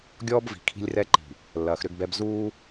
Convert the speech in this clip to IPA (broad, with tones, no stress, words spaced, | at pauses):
ɡʲɔː˦bvi̤˨ kʰi̤˦lʲrɛ˦ǃi̤˨ | lːɐː˨xɾʏ˦ɡbɛ˦b zuː˦